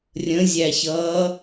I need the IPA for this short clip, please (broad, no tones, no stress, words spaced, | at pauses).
rʲə̃zʲæçʌː